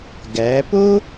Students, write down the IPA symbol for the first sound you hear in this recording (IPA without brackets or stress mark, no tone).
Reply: ɡ